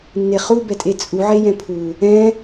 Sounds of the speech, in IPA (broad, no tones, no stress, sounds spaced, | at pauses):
nː e χ u b ɛ tʼ e t͡sʼ u ʕ e j ɛ̃ pʰ u | ɛ̃